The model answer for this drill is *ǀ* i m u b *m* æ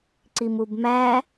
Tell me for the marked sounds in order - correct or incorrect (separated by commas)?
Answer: correct, correct